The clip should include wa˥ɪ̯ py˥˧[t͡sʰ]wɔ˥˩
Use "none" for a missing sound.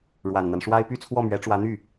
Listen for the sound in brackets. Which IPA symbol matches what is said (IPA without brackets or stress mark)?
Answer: t͡sʰ